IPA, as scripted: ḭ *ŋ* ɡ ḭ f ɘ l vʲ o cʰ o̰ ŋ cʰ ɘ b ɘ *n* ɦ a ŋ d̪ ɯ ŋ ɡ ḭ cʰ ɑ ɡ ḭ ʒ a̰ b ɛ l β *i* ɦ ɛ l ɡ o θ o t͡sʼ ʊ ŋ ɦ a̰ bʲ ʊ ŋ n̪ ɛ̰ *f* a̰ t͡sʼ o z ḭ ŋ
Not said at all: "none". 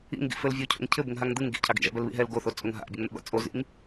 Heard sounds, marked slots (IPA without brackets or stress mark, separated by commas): ŋ, ŋ, ḭ, b